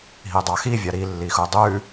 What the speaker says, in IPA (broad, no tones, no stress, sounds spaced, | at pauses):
ɦ i dˤ ɑ x i vʲ ɑ ɾ i lː i x u dˤ ʉ